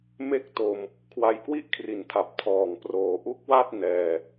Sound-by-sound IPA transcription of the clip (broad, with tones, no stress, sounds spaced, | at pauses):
m e˥˩ k̚ t o˧ m | kʰ w a˧ j k w i˥˩ ʔ kʰ r i˩˦ n tʰ a˨˩ p̚ tʰ ɔː˨˩ ŋ p r oː˩˦ ʔ u˦˥ k̚ w a˥˩ t̚ n ɛː˧